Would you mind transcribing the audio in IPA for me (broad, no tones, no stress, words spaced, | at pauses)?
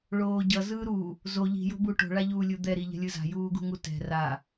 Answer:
ɭoːɟʌ zɯːɾu | zo ʎi̤ jo̤buʈo̤ ɭaʎuːlʲud̪ɛ ɾiʎɛ̤lʲɯza̤ juːɡṳŋutɛ̤ ra